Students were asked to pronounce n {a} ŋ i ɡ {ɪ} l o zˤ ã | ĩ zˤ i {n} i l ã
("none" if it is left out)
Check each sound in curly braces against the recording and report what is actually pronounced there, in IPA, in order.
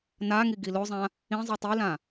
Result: a, i, tˤ

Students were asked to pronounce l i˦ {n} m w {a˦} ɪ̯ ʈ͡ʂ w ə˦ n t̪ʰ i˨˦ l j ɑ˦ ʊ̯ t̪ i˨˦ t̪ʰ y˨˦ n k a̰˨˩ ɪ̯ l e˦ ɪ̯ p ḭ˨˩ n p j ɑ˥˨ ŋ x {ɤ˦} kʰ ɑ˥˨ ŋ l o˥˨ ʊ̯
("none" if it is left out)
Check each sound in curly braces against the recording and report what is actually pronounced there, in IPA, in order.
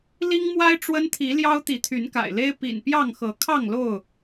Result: ŋ, a˦, ɤ˨˦

